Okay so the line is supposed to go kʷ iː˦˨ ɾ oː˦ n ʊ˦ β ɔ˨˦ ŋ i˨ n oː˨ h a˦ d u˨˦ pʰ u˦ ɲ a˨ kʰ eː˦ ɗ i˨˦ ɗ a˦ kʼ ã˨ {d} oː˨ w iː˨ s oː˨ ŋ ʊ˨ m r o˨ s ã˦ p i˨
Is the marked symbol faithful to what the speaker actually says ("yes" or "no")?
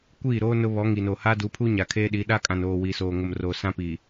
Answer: no